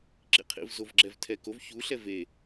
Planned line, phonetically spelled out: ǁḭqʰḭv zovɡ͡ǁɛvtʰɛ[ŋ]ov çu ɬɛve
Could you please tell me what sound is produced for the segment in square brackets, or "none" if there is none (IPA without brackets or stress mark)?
k